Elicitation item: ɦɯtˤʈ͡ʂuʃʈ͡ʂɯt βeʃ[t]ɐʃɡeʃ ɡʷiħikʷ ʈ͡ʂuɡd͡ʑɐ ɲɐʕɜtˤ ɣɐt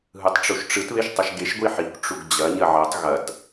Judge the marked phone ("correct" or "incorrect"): incorrect